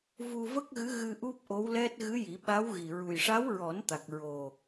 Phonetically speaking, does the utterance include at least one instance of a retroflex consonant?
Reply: yes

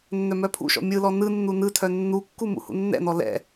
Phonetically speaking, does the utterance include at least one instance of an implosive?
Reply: no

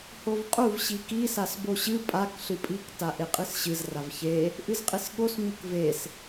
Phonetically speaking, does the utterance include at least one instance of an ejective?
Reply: yes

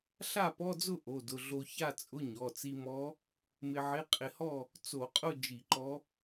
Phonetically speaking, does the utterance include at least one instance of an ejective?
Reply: yes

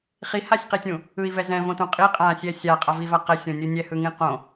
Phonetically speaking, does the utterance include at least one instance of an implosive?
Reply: no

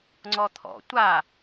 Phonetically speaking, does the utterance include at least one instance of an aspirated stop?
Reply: yes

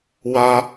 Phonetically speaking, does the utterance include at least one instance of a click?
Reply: no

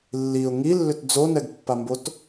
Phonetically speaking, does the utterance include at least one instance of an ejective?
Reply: no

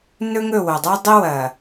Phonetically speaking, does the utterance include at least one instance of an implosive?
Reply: no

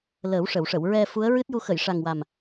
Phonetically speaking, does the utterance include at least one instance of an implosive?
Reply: no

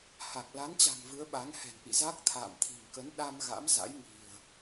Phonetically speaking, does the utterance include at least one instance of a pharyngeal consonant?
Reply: no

